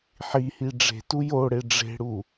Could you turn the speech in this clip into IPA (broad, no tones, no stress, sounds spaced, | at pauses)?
ħ i h i ɖ͡ʐ e̤ t u j o ɽ e ɖ͡ʐ e̤ ɽ u